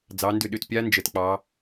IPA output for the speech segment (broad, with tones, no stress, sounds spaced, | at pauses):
d͡z ɑ˩˧ n d ʏ˧˩ ɗ ʏ˧˩ t pʲ a˦˥ n d͡ʒ ə˩˧ t k͡p ɑ˩˧